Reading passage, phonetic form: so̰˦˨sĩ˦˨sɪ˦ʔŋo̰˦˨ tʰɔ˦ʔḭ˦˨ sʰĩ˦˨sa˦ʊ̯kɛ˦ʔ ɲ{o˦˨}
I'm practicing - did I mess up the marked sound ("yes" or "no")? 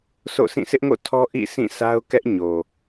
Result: yes